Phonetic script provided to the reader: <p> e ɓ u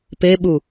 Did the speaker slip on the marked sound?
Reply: no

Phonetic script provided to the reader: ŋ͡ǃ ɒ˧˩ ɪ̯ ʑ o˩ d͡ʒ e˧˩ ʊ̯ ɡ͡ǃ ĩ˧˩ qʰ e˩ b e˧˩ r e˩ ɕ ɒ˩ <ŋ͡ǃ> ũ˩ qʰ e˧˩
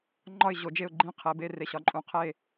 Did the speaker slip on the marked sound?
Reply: yes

